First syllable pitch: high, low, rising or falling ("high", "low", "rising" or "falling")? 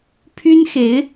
high